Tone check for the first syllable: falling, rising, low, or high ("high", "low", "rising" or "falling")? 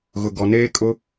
low